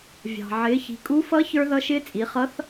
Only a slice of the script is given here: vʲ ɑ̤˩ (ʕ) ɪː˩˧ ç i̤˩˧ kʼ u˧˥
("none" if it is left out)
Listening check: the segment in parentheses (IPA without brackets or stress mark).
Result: ʕ